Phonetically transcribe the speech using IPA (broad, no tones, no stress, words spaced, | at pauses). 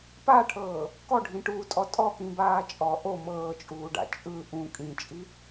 paʈʰɤː | kɔɖʱĩʈuːtʼɔ tʼɔkĩbaː t͡ʃʼɔ ʔo mɤːt͡ʃʼuːɖa̰ t͡ʃʼɯ ʔũ kʼĩt͡ʃʼi